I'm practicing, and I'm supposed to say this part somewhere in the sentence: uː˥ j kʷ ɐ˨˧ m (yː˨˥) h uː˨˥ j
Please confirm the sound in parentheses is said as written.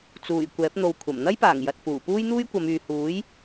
no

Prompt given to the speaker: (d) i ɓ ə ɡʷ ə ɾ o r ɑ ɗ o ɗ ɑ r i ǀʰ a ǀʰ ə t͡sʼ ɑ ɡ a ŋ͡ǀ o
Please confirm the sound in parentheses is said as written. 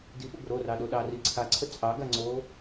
yes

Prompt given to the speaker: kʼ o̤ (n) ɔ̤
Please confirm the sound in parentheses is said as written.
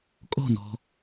yes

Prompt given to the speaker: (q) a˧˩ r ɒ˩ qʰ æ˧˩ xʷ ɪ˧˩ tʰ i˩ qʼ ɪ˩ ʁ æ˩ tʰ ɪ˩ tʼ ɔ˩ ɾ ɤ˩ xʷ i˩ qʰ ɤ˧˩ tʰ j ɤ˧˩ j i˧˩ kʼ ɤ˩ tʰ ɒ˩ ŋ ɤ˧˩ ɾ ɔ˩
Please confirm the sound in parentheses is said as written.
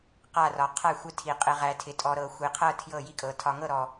yes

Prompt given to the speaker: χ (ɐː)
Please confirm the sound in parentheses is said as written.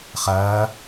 yes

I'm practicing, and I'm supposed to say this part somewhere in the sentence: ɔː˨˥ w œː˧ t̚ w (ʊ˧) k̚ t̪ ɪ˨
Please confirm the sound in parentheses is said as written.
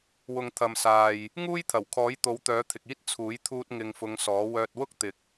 no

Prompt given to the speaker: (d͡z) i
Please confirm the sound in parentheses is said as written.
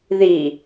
no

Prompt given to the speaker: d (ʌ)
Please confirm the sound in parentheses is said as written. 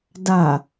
no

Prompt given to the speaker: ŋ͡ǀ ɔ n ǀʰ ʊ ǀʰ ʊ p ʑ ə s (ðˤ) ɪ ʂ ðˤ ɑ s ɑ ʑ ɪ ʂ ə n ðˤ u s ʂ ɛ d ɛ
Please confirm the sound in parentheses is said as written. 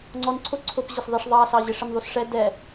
yes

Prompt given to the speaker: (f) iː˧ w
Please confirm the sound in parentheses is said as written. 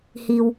no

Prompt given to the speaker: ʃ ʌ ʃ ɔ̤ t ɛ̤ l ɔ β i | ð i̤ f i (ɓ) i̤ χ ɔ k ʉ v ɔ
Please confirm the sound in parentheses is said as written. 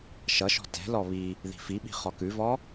yes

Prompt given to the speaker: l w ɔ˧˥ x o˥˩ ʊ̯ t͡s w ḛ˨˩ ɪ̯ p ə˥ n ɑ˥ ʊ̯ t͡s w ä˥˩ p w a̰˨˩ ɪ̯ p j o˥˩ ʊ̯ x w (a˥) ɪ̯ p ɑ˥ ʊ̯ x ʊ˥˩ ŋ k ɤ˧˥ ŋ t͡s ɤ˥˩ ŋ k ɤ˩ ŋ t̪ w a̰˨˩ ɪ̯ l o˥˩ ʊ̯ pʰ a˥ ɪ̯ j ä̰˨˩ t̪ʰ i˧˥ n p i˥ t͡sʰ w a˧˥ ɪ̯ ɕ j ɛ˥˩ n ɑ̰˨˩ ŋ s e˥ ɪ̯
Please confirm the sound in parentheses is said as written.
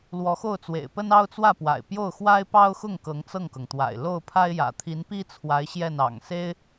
yes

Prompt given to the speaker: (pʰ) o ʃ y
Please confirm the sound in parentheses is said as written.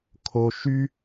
no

